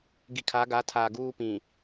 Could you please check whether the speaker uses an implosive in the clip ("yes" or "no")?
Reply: no